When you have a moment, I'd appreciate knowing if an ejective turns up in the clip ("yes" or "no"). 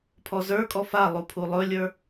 yes